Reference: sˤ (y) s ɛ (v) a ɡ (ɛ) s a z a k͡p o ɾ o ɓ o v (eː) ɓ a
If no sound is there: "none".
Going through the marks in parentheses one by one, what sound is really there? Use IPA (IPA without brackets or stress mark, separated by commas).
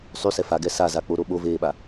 y, f, ɛ, eː